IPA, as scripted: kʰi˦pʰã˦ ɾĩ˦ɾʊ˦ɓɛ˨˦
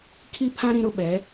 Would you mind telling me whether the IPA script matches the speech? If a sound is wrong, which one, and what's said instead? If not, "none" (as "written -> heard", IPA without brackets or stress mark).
none